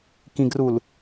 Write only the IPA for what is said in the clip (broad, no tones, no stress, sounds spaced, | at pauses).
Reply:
k ĩ ɡ r u l